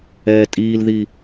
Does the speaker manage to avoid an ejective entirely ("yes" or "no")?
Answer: no